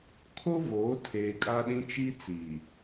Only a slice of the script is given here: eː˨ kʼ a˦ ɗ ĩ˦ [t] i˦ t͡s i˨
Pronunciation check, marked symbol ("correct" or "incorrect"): incorrect